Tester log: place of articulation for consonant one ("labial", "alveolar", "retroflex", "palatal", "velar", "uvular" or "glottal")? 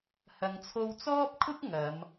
glottal